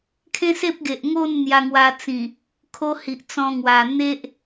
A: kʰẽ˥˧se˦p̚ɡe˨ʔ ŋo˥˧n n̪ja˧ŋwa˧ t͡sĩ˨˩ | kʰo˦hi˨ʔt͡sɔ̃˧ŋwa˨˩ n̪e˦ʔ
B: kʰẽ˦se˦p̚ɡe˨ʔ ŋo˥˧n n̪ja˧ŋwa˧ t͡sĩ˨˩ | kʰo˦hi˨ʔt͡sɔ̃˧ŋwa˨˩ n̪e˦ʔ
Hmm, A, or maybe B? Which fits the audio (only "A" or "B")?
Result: B